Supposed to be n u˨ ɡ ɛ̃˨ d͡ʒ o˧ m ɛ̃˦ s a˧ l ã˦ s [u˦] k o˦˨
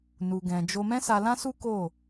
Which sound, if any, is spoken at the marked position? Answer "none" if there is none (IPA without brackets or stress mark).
u˦